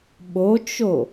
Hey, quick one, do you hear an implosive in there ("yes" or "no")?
yes